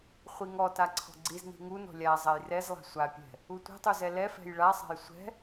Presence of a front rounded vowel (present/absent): absent